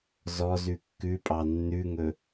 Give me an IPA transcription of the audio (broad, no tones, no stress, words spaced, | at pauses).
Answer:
zɔzʉ kːʉpʼɑ nːʉŋɵ